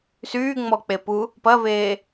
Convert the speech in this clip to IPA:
s yː ŋ͡m ɔ k͡p e p u | p ɐ v eː

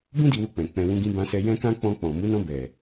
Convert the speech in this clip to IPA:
b ũ˦ d i˧ w u˧ k͡p ɛ̃˨ k͡p ɛ̃˧ w ũ˦ ɡ ĩ˦ b ã˧ s ɛ˧ j ɛ̃˦ k ã˦ k͡p ɔ̃˧ k͡p ɔ̃˨ m u˨˦ n ɔ̃˧ b ɛ˨

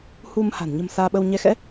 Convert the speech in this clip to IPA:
h u˧ m h a̤˨˩ n ɲ ə̤˨˩ m s aː˧ ɓ ə˧ w ɲ ɛ˧ x ɛ̰˧˥

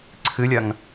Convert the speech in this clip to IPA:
ǀʰ ɨ lʲ ɐ ŋ

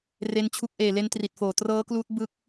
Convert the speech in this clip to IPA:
r e˧ n t͡ɕʰ u˦˥ k̚ ʔ eː˨˩ l e˧ n t r i˨˩ t̚ f oː˨˩ t r ɤː˦˥ k l uː˦˥ t̚ b ɯ˦˥ k̚

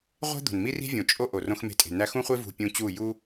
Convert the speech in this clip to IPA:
ʁʷ e̤˦ d̪ o̤˨ n m i˦ r i̤˦ vʲ õ˨ t͡ʃʼ o˦ ʔ o˨ r õ˧ x m e̤˧ tʼ e̤˨ n æ˧ x ũ˦ χʷ e˦ v ṳ˧ pʲ ũ˧ t͡ɕ u˦˨ j u˦

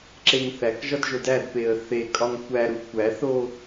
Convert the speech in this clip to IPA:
ǁ e ŋ θ æ k ʒ ɒ d ʒ o d æ d p e ə̯ θ e kʼ ɒ ŋ kʷ æ ɾ u kʷ æ θ o

